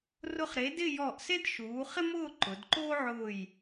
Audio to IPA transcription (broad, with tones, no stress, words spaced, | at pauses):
rʊ˧χɾe˩˧ dɪ˥˧jɔ˧˩ʔse˥d ʃuː˩˧χɪ˥mʊː˥˧ ǃʊ˩˧d ǃoː˥ʕʊː˧˩j